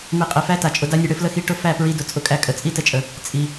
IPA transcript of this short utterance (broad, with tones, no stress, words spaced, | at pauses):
mi˨˦qʼi˨fæ˦ta˨ t͡ʃʼʊ˧da˦nʲə˧ ɽɘ˧flə˦xi˧ʈʊ˦ fæ˦˨pɹi˧ dʊ˨t͡sʼʊ˧kʼæ˧ kʼə˨t͡sʼi˦tə˧t͡ʃʼə˨ | t͡sʼi˨